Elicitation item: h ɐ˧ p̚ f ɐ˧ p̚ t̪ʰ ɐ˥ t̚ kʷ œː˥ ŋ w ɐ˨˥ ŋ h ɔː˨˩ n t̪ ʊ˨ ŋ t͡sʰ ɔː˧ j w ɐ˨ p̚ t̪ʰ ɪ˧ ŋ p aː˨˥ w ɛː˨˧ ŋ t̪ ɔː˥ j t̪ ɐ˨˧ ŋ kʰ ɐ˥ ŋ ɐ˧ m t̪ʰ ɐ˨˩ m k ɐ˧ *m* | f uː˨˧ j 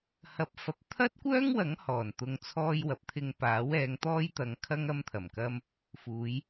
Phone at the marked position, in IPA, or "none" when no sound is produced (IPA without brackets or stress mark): m